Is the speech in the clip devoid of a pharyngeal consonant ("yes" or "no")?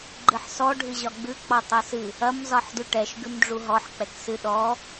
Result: no